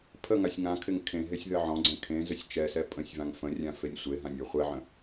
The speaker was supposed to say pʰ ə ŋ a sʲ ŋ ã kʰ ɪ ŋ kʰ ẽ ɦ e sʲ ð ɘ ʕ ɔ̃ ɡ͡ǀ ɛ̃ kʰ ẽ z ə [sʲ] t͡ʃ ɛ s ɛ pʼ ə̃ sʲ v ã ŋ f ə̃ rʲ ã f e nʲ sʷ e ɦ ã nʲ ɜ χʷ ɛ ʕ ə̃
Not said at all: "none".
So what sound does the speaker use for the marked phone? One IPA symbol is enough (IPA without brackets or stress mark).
sʲ